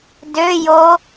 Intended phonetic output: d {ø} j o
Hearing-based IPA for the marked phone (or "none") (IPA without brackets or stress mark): ø